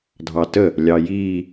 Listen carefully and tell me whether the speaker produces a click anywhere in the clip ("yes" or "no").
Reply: no